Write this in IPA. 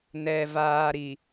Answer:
nɛ˨vaː˨ ɾi˨

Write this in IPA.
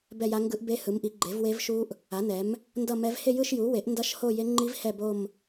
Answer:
bɛ˥˧ja˦˥ ŋɡɯ˦˥ʔ be˦˥hɯ˩˥mʔi˩˥ ɡ͡ǃe˩˥vwe˦˥vʃu˦˥ʔ | a˩˥nɛ˩˥m | ndʌ˥˧mɛ˦˥v he˥˧jɯ˥˧ʃju˩˥we˩˥ʔ ndʌ˦˥ʃho˥˧je˦˥ŋ͡ǃi˦˥v hɛ˥˧bo˥˧m

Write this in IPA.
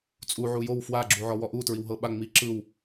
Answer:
t͡sʼu ʕujow fwaɡ͡ǁuʕɔ wɔʔutɹiwɦɤ ɓa ŋ͡mi ǁɯw

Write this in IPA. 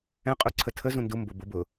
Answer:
ɛ̃qʼu ǀʰətʰəzũ ndumbʊ bʊbʊ

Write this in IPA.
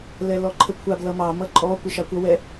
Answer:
lɛlɔǃʰəkʷʰab lʌmɑ mʌǃʼɔ kʷəʃɑkʷʌ wɛ

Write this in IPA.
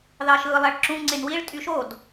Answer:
ðɑʃɯːlˠæɭǁũ ŋ͡ǀenwiɭ tʼyʃod

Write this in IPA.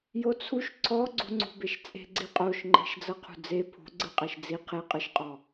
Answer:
jot͡sʰuʃ ǀʰɔɡ͡ǀṳŋ͡ǀṳbeʃ t͡sʼe̤ɡ͡ǀiqʼoʃŋ͡ǃe̤ʃ d͡zɤqʰṳd͡ze pʰṳɡ͡ǀɯqʼɛʃ d͡zi qʰeqʼɯʃqʼɔ

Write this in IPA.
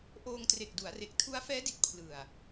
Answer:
ʔoː˧ŋtre˨˩k̚du˩˦a̯re˨˩k̚ tʰu˦˥a̯fɛː˦˥di˨˩t̚ pʰlɯ˨˩a̯

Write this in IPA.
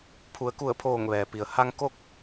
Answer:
pʰu˩˧ə̯ku˧˩ə̯pʰoː˧˩ŋ ʋɛː˩pi˩ə̯ ha˧ŋko˥˨k̚

